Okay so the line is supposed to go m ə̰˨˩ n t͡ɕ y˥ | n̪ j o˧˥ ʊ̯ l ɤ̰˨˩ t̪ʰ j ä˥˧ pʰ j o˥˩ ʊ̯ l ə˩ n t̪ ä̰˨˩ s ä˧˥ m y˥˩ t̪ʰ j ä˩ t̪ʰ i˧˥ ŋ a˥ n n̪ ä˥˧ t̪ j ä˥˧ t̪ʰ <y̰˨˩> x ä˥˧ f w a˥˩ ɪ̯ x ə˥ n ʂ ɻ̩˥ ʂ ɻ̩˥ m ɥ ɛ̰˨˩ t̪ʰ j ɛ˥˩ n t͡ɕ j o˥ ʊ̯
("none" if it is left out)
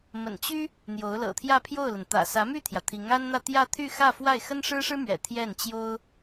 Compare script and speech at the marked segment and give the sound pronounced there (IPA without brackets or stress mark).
y˥˧